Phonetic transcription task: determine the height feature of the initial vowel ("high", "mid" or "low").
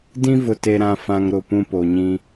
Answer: high